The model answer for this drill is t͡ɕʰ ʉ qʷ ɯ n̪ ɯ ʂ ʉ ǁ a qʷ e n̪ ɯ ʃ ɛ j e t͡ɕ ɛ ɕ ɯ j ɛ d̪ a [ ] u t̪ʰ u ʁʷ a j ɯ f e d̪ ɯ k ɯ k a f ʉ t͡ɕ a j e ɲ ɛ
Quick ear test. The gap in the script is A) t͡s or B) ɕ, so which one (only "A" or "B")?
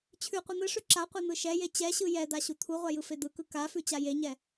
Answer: B